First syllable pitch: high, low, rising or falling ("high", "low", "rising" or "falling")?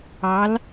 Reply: rising